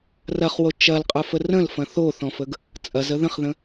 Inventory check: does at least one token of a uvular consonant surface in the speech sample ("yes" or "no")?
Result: yes